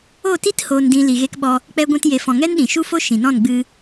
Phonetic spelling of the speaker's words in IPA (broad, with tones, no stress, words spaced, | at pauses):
o˦˨ti˦t hoː˧ndĩ˧ li˨ɣe˧kɓɔ˧ | k͡pɛ˧ɡʷɛ̃˧tje˨fɔ̃˨ ŋɛ˦nɗĩ˨ ʃu˦fo˦ ʃĩ˨nɔ̃˦˨nɡ͡bɨ˧